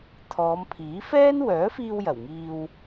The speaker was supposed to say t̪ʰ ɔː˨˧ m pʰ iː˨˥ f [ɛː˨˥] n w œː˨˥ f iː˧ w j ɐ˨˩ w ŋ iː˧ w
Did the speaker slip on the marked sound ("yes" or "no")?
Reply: yes